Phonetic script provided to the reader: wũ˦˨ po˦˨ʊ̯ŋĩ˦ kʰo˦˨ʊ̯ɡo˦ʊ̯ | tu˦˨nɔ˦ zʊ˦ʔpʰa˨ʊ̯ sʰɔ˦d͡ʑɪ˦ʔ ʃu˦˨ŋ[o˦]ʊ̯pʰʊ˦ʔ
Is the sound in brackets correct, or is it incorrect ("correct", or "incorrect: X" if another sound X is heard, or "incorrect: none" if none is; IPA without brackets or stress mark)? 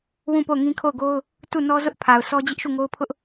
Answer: correct